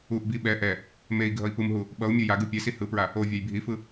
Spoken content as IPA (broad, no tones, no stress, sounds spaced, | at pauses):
u ʔ b i ɓ ɛ ʔ ɛ | m e i̯ ɡʱ ʌ i̯ p ɯ m ɦ u | ɓ ʌ u̯ mʲ u j a ɡ ɯ pʲ e s i h ɯ p ɹ a | o vʲ a j bʱ i f ɯ